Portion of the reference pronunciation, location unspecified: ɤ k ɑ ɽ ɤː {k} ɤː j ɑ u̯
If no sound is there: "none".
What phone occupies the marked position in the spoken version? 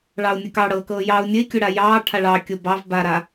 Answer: k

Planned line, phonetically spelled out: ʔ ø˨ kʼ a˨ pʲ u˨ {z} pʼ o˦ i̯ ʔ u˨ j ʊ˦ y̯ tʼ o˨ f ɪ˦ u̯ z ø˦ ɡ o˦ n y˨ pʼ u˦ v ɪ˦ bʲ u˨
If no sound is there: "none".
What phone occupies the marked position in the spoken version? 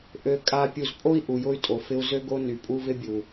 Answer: z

